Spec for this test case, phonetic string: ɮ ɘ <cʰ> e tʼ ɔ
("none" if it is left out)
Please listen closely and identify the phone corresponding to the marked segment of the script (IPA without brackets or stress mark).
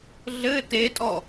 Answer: t